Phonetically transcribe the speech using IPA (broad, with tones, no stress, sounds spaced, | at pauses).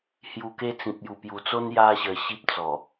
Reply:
h j u˧ k e˦ t͡s ĩ˨ p̚ j u˨˩ p j u˨˩ t͡s o˦ n j a˦ ɕ ə˧ ɕ i˦ p̚ t͡s ɔ˨˩